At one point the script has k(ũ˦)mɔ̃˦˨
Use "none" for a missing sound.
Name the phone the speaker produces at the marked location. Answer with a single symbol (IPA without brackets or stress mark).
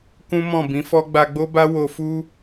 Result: ũ˦